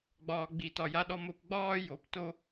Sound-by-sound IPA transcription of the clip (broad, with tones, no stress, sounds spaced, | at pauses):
ɡ͡b ɒː˨ ɡ͡b i˨ t ɒ˨ j a˨ ɗ ɔ˨ m o˨ p ɡ͡b ɒː˦ j o˨˦ p t o˦